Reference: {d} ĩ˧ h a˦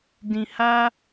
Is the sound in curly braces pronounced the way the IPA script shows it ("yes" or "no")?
yes